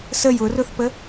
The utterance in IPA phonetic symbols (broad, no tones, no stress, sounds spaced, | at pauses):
s ə j ʊ r ʊ θ p ə